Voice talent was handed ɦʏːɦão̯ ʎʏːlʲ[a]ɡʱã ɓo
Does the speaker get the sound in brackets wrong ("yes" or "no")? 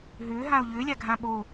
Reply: no